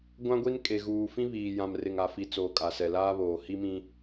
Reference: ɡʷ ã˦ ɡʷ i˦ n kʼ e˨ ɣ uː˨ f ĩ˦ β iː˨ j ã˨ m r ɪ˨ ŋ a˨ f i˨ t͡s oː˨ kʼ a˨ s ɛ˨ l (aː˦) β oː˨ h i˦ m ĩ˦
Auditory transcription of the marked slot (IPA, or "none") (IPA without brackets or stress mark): aː˦